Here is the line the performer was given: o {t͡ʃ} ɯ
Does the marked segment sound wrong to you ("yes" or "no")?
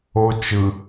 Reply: no